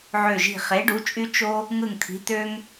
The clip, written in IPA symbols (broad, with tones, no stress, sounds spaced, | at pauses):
ʕ ø˧˩ ʒ i̤˧˩ χ e˩˥ ɖ u˩˥ t͡ʃʼ y˦ t͡ʃ o˦ | ŋ ɯ˧˩ ŋ t̪ʰ i̤˩˥ t̪ ø˦ ŋ